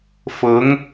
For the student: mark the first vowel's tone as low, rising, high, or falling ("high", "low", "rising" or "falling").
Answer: rising